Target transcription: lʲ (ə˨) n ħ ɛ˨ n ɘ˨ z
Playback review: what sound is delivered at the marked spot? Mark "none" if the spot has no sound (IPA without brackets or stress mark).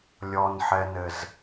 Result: ɔ˨